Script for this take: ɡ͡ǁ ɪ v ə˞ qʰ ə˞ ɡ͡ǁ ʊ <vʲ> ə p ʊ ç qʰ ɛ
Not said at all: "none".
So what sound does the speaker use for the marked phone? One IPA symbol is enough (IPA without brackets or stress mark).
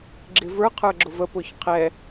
v